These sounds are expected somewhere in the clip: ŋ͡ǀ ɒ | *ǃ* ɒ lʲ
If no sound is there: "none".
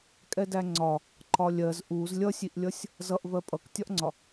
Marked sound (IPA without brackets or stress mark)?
ǃ